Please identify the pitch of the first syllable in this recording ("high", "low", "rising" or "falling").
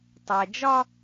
low